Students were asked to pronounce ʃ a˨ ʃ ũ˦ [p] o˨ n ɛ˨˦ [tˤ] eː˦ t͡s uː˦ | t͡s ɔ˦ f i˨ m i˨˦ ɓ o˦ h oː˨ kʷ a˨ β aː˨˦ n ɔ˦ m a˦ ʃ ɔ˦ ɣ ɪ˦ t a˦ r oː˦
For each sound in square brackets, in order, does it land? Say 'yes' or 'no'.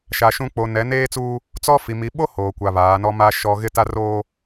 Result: no, no

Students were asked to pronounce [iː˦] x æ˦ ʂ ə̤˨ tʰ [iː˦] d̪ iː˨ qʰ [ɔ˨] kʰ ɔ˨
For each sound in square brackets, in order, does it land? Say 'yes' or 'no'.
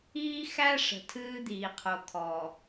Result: yes, no, no

